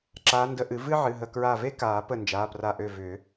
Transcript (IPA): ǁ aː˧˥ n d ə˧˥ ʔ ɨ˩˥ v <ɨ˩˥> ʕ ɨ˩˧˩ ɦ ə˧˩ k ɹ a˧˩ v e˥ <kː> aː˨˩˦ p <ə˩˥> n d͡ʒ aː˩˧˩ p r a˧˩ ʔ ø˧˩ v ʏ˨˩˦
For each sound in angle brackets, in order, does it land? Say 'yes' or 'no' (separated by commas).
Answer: no, no, no